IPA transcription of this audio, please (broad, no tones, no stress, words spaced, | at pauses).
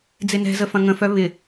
d͡zɪnɛ̤zə fɐ̃ŋə̃fœ βɪ